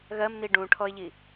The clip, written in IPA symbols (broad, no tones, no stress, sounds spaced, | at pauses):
ɣ ɜ m n i ɖ ũ ʈʰ ɔ ɪ̯ ʎ i